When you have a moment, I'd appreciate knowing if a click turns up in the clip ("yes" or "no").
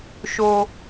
no